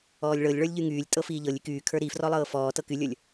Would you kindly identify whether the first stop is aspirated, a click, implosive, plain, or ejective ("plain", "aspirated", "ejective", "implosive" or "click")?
ejective